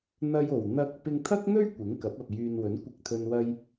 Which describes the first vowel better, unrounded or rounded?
unrounded